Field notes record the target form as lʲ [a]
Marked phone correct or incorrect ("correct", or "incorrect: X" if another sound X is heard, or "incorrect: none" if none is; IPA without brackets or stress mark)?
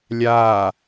correct